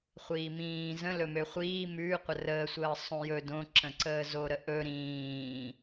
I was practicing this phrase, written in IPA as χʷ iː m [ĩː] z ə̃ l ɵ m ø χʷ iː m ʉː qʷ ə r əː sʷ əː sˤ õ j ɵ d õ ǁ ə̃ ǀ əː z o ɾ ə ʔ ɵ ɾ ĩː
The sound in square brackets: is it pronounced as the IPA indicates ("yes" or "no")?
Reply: yes